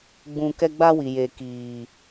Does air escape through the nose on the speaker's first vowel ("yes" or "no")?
yes